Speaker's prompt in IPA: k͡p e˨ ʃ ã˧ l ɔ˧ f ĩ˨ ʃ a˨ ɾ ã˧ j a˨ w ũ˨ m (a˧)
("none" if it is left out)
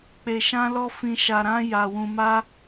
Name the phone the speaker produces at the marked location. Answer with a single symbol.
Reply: a˧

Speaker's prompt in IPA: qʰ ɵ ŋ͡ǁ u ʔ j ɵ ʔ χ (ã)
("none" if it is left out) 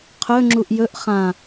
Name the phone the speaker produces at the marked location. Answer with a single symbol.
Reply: ã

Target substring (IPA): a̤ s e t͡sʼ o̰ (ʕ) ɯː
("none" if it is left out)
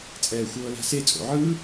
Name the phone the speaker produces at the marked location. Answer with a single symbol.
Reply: ʕ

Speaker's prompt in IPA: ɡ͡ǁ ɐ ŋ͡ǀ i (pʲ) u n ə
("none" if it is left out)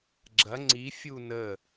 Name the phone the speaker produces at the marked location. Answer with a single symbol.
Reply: fʲ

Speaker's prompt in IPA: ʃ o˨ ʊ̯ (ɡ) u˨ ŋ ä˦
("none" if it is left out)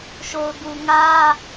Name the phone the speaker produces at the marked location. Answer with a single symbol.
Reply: ɡ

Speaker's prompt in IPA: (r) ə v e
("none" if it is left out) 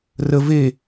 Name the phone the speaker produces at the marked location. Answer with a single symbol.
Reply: r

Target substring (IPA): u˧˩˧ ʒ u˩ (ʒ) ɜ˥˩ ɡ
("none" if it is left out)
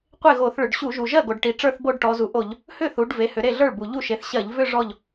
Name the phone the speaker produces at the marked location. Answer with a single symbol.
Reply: ʒ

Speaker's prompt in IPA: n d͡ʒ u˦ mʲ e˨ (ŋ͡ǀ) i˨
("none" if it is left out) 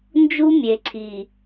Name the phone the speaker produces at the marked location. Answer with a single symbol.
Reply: ǀʰ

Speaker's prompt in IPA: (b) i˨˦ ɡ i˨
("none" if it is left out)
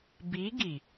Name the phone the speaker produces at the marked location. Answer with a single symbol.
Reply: b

